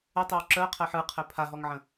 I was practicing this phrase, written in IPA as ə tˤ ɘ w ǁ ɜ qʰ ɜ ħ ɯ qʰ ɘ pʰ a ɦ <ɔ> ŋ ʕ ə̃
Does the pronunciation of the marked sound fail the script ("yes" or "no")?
no